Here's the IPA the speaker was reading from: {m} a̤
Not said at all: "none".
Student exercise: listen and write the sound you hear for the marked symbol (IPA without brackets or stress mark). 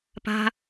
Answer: p